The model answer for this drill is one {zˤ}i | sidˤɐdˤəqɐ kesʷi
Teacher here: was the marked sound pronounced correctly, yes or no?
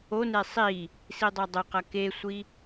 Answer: no